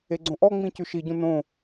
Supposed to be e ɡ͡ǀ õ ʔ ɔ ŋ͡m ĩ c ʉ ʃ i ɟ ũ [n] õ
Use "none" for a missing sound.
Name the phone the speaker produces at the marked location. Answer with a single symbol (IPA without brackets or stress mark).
n